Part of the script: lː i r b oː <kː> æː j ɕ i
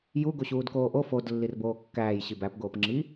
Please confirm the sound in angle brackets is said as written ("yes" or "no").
yes